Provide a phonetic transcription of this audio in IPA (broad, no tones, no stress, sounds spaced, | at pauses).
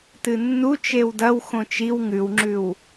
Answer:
t ɨ nː u t͡ʃ e w d ɐ w x õ t͡ʃ i w ŋ ʉ w ŋ͡ǁ ʉ w